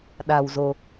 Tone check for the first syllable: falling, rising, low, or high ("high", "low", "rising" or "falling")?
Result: low